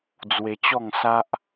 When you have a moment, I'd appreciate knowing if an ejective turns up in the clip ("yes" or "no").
no